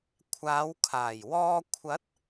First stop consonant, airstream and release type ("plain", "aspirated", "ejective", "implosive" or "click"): aspirated